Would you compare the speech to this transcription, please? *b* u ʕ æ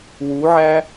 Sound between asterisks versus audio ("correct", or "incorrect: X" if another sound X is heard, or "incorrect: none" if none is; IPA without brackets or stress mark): incorrect: w